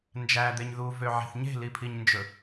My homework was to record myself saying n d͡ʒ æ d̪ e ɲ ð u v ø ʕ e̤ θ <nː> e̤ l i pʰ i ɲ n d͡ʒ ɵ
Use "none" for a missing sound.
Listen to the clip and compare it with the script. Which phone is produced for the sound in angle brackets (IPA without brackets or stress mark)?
ɲ